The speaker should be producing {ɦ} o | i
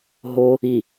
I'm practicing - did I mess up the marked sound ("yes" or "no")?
no